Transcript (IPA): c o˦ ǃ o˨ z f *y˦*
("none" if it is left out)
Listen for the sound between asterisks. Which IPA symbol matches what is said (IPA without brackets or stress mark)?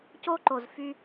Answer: y˦